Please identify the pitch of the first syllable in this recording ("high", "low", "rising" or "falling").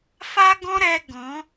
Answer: high